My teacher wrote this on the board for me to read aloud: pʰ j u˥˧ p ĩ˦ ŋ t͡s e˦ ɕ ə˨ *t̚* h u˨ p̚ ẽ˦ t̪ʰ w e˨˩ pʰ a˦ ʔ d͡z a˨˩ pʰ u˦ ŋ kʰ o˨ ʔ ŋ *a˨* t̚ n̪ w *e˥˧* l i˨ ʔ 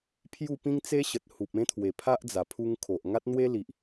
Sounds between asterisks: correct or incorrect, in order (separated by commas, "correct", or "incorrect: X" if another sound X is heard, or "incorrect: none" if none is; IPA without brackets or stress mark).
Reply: correct, incorrect: a˦, incorrect: e˦